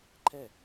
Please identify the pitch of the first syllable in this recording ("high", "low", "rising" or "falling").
falling